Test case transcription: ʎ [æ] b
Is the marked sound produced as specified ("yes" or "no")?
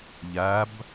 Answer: yes